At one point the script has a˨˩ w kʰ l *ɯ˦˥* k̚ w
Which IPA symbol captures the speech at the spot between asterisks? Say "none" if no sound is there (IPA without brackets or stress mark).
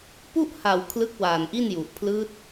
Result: ɯ˦˥